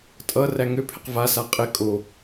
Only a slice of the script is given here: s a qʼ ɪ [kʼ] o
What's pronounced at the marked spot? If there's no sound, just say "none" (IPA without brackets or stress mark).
kʼ